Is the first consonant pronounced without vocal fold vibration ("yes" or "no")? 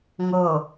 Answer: no